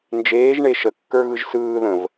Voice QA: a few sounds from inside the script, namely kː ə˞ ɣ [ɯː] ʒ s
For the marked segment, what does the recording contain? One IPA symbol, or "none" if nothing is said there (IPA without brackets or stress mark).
ɯ